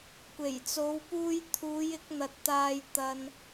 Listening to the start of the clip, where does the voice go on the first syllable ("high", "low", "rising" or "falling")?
low